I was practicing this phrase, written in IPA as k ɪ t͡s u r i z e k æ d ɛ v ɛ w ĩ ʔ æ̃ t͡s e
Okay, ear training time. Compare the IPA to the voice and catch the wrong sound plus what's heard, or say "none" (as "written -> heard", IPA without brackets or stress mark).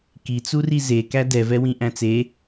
ɪ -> i